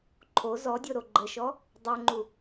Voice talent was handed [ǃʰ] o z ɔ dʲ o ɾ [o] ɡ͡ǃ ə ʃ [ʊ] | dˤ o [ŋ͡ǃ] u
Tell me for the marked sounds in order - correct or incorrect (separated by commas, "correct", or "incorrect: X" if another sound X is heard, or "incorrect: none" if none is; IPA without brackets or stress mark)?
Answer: correct, correct, incorrect: ɔ, correct